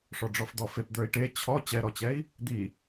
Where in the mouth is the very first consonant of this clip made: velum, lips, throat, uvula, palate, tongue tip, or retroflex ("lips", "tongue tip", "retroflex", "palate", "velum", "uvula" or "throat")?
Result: retroflex